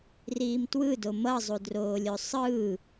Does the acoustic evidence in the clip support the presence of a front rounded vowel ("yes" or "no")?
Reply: no